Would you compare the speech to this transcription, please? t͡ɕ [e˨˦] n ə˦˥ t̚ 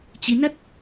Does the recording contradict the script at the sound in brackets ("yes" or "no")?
yes